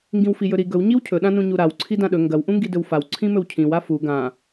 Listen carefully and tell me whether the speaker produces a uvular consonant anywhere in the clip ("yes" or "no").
no